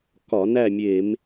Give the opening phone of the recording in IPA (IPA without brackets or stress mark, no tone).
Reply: k